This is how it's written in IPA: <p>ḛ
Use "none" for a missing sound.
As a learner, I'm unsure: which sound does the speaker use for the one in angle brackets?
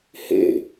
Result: h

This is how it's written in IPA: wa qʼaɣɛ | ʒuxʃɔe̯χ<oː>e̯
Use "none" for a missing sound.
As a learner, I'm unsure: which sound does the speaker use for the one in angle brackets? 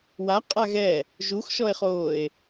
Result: oː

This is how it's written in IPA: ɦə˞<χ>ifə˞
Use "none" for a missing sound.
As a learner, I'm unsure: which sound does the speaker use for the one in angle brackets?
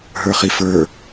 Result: χ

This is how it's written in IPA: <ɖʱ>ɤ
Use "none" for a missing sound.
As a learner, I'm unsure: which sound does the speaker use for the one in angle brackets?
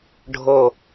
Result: ɖʱ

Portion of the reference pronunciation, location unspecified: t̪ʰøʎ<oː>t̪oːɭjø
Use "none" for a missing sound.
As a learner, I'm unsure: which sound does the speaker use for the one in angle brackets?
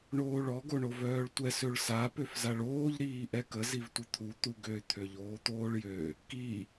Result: oː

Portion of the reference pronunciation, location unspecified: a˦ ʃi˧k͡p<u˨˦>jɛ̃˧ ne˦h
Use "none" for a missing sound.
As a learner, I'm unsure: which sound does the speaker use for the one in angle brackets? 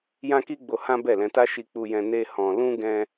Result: u˧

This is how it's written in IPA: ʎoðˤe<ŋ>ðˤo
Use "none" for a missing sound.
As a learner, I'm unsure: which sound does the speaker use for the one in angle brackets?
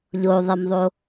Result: m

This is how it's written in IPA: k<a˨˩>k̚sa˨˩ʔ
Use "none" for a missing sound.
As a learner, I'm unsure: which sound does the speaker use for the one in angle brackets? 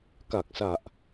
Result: a˨˩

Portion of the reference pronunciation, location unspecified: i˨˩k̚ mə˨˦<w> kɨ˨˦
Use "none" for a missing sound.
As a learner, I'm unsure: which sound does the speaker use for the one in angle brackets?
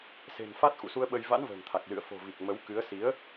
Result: w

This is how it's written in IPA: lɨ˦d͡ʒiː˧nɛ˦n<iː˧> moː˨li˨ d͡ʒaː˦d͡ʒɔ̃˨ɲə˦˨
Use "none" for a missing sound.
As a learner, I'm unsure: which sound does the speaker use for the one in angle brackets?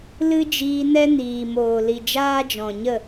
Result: iː˨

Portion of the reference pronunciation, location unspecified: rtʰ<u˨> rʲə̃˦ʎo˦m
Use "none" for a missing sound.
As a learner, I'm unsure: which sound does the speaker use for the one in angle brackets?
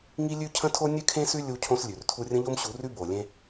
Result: u˦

